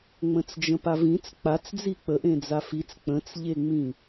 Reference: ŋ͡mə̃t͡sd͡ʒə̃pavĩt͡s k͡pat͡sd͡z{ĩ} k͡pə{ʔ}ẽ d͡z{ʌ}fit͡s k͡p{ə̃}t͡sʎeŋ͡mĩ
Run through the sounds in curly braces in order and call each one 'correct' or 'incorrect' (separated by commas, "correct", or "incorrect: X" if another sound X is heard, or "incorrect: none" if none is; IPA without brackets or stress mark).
incorrect: i, correct, incorrect: a, correct